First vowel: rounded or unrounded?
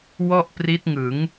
rounded